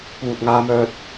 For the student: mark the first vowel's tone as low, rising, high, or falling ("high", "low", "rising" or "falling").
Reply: low